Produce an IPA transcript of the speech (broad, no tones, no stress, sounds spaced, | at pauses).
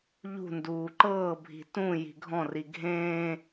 ʎ ṳ n d uː ǃ ɤː bʱ i̤ t ũ j i̤ ɡʱ ɔ̃ r i ɡʱ ẽː